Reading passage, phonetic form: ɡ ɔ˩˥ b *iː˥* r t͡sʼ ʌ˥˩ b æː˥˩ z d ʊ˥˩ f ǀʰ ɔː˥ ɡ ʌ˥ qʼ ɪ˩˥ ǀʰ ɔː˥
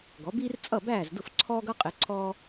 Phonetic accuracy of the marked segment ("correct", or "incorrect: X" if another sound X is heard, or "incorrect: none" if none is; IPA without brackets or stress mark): correct